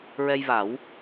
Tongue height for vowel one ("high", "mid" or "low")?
mid